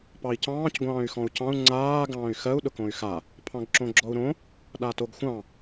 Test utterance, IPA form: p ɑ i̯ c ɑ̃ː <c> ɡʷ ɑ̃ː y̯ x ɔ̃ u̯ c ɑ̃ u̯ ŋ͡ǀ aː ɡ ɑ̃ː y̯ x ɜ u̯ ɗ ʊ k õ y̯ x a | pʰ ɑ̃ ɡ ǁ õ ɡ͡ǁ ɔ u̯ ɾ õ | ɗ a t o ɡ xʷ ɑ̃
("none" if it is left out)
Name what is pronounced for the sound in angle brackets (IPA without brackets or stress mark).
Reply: c